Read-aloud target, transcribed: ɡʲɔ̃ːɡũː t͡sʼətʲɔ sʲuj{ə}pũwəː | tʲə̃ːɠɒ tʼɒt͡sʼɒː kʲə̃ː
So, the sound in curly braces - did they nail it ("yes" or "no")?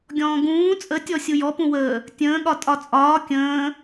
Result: no